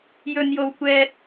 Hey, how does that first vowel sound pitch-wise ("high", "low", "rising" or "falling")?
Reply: high